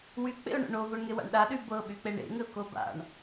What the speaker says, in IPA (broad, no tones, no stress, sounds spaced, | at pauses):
w y k͡p ḛ ʊ̯ ɳ o̰ ɳ o v o ɳ ŋ e w a̰ ɳ ɗ a ɗ y b ɤ ɓ y k͡p e ɳ ḛ ŋ ɘ ʊ̯ k o b a̰ ɳ